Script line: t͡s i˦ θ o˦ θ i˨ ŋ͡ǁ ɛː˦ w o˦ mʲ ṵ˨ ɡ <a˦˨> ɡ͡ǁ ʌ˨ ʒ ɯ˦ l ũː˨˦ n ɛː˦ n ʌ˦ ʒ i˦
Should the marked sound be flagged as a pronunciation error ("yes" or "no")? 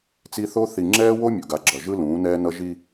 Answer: yes